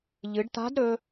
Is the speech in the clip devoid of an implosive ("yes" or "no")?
yes